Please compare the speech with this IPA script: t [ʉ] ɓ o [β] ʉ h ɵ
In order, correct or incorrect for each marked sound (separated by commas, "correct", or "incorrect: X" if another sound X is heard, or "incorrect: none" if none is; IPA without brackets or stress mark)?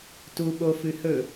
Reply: incorrect: u, incorrect: f